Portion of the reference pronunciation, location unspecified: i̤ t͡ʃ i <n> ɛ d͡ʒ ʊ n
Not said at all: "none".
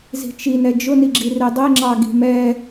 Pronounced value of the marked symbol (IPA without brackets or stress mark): n